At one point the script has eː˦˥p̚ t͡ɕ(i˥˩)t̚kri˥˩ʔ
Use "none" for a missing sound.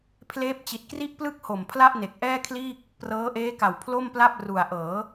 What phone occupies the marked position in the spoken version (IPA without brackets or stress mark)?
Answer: i˨˩